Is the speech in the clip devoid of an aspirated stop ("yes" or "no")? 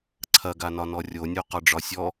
no